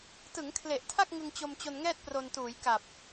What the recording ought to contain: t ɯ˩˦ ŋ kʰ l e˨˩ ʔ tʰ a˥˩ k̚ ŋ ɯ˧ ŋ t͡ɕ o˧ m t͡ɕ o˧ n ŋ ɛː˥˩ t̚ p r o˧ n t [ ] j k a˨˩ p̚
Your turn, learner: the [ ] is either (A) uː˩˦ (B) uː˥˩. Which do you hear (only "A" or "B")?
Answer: A